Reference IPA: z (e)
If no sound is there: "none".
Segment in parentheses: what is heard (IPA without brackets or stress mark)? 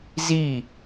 i